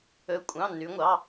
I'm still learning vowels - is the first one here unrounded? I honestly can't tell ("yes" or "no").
no